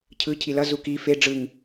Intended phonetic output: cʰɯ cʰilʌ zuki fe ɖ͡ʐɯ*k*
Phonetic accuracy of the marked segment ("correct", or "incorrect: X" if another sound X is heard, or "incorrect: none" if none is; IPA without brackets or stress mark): incorrect: ŋ